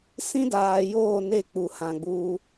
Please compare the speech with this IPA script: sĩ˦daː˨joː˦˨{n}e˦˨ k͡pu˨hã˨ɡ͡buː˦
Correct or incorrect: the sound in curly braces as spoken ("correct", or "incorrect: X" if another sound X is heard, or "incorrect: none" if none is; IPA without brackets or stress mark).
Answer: correct